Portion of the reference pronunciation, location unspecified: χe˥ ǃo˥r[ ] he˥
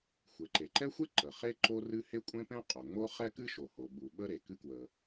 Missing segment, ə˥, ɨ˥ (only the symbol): ɨ˥